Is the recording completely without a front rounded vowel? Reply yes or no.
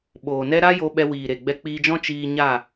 yes